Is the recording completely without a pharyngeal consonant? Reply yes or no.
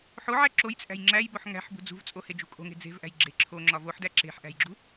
no